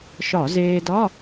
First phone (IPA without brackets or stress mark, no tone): ʃ